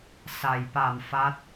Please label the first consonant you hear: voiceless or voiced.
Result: voiceless